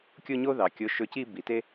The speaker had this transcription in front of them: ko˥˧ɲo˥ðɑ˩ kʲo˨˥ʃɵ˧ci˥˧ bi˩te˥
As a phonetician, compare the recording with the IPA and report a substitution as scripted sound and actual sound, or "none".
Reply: k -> kʲ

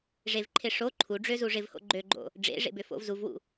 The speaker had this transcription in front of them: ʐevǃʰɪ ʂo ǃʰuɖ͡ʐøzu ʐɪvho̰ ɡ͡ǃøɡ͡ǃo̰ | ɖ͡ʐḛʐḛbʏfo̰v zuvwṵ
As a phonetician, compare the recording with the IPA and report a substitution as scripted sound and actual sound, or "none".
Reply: none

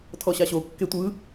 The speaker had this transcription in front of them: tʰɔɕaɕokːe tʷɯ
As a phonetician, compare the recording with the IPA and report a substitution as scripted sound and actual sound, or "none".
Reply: none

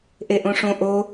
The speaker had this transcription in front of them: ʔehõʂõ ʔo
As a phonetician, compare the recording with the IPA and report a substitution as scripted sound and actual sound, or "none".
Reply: h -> ʔ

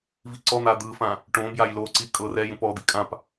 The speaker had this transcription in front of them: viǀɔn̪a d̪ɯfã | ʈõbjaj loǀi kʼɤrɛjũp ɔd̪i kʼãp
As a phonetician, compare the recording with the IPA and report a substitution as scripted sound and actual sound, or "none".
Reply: none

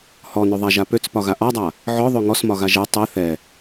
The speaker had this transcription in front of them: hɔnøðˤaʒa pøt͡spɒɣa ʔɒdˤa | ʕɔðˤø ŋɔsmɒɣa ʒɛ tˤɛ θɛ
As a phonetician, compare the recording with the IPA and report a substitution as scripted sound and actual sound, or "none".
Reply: none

